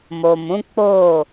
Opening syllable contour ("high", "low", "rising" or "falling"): low